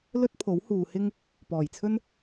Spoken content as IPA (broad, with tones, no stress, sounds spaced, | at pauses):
l ɵ˥ t̚ pʰ o˨˥ w h uː˨ h ɪ˥ ŋ | p ɔː˨˩ j t͡sʰ ɵ˥ n